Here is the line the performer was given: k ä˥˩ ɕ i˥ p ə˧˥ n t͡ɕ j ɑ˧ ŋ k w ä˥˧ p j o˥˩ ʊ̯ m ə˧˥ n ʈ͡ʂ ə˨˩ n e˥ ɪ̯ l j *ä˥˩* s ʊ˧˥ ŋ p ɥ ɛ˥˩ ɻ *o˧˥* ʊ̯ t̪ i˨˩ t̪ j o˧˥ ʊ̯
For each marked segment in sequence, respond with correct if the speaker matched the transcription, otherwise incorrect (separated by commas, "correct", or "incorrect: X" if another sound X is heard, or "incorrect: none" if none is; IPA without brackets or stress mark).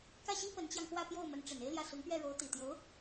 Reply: correct, correct